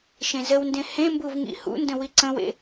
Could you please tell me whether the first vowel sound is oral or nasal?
nasal